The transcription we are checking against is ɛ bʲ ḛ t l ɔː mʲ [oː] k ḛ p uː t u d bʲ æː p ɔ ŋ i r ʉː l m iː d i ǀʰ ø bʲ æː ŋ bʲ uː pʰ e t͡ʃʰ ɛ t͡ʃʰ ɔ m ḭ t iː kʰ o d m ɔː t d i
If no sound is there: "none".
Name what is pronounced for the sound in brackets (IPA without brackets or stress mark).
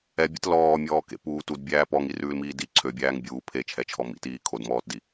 ɔː